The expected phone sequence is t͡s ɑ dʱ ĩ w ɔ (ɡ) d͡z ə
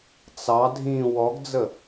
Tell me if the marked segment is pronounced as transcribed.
yes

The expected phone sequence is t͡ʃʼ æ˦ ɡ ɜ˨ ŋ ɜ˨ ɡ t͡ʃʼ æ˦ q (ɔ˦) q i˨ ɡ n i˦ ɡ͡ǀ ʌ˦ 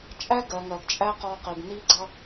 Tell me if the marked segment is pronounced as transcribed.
yes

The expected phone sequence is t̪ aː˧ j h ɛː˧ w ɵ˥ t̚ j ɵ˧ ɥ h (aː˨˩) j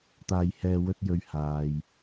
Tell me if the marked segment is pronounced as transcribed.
no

